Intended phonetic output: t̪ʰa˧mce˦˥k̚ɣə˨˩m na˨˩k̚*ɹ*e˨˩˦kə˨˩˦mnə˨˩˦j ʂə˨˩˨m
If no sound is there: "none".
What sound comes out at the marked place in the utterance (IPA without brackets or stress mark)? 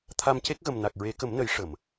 ɹ